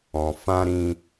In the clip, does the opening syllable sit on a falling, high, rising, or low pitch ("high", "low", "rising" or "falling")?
low